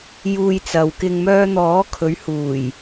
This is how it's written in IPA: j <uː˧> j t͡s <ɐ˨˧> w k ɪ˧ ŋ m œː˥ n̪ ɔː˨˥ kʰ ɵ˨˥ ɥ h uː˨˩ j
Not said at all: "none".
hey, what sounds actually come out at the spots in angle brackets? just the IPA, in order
uː˧, ɐ˨

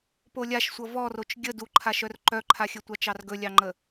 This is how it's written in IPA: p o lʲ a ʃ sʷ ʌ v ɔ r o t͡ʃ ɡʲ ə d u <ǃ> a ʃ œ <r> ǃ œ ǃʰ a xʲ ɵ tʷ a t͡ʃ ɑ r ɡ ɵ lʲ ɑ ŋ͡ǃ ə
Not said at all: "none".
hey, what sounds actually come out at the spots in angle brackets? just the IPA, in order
ǃʰ, r

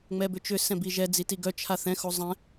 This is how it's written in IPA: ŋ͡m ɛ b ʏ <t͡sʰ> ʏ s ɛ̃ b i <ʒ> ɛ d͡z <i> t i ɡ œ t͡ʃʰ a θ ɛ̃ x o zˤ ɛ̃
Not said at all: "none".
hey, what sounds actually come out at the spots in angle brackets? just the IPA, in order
t͡ʃ, ʒ, i

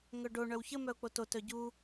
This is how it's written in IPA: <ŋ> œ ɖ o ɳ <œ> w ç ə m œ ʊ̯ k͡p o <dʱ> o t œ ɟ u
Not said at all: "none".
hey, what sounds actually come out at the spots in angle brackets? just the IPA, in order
ŋ, œ, t

